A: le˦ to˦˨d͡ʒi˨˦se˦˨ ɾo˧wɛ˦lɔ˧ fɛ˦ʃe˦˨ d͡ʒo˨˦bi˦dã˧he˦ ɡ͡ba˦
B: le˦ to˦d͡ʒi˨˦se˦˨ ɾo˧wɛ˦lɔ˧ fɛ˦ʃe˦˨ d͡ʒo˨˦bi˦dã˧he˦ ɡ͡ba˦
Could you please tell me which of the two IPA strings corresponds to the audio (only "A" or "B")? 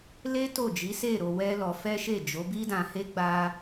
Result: A